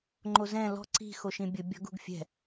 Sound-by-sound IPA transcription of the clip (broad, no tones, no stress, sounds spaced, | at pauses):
ŋ͡ǃ o z ɛ̃ l ɔ̤ ǀ i̤ x o ʃ ĩ bʲ ʊ bʲ ɔ̤ ɡ ṳ ɡ fʲ ɛ̤